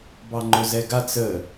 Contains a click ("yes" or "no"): yes